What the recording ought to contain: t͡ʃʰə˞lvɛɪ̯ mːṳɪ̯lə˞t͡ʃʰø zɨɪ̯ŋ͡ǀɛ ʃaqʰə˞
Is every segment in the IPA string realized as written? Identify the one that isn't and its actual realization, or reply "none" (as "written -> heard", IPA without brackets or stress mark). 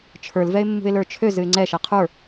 none